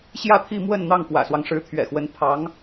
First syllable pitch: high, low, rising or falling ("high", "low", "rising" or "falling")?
falling